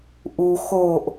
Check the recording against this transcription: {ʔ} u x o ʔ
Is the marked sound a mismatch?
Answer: no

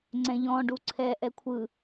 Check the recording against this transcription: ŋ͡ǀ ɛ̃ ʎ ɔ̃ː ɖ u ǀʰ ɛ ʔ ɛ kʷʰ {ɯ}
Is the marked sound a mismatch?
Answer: no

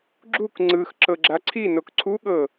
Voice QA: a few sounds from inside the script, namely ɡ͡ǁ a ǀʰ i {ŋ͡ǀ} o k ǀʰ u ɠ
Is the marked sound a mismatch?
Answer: yes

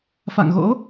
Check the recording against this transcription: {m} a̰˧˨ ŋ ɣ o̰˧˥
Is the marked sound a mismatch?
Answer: yes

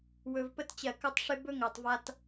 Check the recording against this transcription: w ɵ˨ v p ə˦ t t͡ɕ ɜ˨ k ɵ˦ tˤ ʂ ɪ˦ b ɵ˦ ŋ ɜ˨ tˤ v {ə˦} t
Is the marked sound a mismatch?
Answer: yes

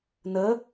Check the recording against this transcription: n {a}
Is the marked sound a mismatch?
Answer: yes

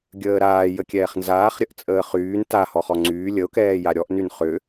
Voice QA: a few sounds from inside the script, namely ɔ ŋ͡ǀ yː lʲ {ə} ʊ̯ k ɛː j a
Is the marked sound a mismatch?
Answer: no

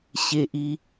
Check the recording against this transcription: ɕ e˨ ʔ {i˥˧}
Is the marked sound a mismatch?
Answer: yes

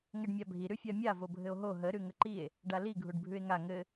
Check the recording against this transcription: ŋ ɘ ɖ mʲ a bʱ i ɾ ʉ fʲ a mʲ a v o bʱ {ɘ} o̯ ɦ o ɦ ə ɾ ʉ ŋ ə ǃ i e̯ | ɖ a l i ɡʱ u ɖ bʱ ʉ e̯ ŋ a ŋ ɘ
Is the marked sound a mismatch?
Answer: no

